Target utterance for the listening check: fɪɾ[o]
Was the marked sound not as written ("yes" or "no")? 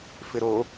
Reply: no